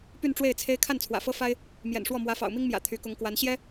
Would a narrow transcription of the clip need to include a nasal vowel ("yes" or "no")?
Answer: no